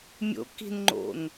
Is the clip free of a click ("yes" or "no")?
no